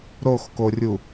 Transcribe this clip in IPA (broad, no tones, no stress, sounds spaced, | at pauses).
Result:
ɾ o x k o rʲ u